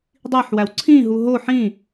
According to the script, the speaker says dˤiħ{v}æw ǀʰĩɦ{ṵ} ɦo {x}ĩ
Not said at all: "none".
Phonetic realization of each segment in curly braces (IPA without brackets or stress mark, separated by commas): w, u, ħ